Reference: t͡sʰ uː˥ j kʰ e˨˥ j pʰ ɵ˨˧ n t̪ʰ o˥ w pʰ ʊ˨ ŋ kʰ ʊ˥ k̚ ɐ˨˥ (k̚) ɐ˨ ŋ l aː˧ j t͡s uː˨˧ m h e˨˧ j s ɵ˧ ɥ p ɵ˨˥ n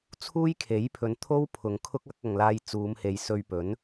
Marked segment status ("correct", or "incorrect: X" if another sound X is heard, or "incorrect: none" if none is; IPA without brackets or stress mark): correct